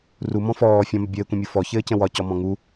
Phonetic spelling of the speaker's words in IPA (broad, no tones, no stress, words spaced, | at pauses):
rumɔ̃ fɔː fʲɔ̃mɛ bʲɘːkʷɛ̃mʲu fɔçɘːcə̃ wɒcɔmɔ̃ ŋu